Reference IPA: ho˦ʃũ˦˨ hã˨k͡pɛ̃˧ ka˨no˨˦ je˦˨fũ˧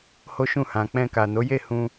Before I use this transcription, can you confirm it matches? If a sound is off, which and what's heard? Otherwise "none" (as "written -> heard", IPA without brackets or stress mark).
f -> h